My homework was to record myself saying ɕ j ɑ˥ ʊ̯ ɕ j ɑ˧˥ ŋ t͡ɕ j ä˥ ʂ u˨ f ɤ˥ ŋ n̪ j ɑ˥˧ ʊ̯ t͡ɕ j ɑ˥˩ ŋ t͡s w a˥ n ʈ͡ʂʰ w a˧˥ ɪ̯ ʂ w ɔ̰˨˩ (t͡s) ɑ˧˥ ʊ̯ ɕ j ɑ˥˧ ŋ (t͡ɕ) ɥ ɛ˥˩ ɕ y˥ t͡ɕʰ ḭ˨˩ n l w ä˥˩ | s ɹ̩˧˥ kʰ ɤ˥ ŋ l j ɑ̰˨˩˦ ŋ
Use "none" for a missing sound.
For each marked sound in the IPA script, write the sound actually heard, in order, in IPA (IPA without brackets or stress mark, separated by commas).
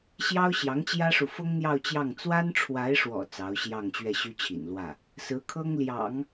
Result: t͡s, t͡ɕ